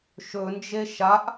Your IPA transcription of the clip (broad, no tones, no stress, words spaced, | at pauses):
ʃɵnd͡ʒe ʃaʔ